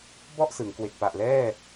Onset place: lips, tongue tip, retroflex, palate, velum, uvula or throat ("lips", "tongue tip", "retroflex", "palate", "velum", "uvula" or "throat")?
lips